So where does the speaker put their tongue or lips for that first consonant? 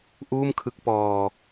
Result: throat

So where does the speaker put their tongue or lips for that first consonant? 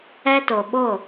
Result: tongue tip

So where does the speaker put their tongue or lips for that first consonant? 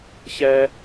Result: palate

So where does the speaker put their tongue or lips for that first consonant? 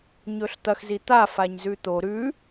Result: palate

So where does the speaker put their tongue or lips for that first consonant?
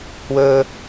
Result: throat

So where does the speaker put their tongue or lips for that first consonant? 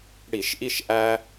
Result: retroflex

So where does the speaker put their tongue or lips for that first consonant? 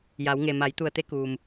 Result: palate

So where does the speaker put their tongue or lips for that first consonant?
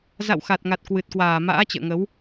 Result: tongue tip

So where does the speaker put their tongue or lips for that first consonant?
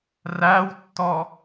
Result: tongue tip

